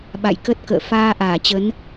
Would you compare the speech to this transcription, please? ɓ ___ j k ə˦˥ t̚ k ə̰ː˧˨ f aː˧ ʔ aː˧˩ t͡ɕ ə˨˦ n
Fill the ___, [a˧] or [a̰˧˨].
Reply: a̰˧˨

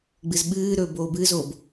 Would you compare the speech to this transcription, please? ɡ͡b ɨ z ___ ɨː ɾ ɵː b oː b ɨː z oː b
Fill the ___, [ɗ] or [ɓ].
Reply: ɓ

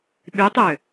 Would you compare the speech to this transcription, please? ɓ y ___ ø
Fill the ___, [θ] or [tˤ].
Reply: tˤ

